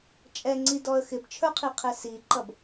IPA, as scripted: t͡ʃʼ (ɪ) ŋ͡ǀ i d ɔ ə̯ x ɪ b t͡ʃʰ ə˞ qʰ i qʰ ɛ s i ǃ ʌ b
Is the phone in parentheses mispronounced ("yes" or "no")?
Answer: yes